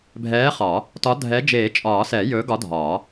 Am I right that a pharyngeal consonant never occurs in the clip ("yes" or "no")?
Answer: yes